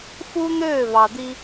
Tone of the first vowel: high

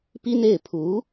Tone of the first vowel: high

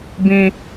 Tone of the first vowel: high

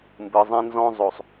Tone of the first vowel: low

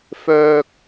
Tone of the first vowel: low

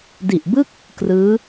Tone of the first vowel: low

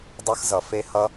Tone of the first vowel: high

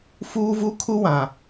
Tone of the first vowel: high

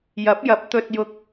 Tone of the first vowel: rising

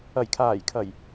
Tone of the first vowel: low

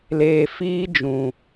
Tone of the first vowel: low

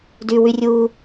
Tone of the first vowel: low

